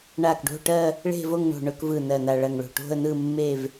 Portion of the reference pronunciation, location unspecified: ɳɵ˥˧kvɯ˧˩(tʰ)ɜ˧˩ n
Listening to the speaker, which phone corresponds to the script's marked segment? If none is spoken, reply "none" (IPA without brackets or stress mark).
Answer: n